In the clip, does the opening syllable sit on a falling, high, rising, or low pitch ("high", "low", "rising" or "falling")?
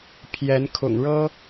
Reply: rising